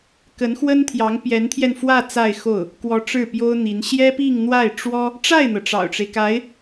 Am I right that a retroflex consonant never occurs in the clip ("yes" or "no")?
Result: no